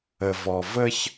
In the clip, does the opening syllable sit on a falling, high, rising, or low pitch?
low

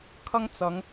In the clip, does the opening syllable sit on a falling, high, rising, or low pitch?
high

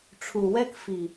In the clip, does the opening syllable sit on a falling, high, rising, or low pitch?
low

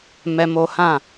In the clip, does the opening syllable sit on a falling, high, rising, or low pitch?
high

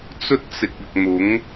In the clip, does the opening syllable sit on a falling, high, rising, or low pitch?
high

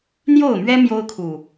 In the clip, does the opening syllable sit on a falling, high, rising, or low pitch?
falling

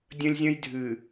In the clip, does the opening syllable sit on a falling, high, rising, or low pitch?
high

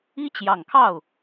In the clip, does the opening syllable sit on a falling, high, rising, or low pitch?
high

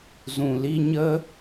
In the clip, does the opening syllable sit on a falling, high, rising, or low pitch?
low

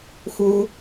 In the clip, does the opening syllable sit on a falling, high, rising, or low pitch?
low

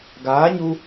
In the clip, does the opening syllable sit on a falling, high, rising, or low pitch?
rising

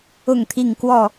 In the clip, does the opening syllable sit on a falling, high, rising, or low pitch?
falling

